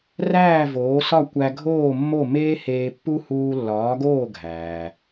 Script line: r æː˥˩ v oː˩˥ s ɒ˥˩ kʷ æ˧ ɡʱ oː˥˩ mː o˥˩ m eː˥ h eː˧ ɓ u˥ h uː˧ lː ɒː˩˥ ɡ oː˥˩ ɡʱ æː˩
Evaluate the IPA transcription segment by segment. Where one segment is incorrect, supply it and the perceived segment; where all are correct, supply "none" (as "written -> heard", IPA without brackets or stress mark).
ɓ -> pː